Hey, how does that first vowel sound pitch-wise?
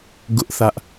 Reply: high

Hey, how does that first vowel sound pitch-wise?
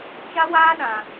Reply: high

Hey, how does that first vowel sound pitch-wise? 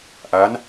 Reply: rising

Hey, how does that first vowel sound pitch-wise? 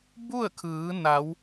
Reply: falling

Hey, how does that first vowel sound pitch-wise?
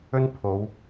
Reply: high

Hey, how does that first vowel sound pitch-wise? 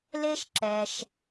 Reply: high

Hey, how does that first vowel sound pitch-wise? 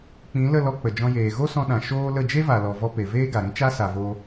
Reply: rising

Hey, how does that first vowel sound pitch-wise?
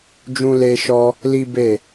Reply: high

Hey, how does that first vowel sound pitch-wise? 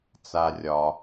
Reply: low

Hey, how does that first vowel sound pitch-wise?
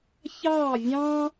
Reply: falling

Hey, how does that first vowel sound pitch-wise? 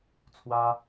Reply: high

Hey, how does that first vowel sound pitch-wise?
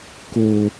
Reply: low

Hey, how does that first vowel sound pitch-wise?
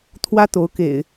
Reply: high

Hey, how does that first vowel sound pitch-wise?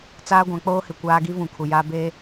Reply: high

